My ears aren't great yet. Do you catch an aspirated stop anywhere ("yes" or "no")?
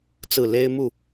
no